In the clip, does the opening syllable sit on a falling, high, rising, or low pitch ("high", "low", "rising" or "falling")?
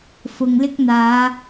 low